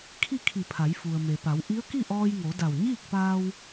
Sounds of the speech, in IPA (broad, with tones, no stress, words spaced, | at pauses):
kʰi˥˨kʰi˧˩pʰa˩˧j fu˩ə̯me˩pa˩˧w ʔi˧˥ə̯ki˥˨ʔɔː˧jŋo˩˧ da˧˩w ɲiː˥˨k̚paː˧w